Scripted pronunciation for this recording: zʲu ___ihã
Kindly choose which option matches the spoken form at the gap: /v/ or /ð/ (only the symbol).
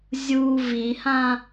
v